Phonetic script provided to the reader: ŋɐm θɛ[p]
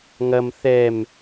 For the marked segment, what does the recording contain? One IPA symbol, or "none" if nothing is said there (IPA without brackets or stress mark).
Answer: m